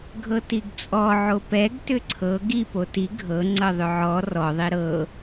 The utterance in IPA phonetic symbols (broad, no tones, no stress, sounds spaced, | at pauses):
ɡʱ ɤ t i ɡ t͡sʼ ɔ ʕ o p ɛ ɡ t ʏ ǀʰ ɤ ɡ i p o t i ɡʱ ɤ ŋ͡ǀ ɤ ðˤ ʏ ʕ ɔ r ɔ ðˤ i ɾ ɤ